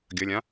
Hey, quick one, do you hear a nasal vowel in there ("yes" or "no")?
yes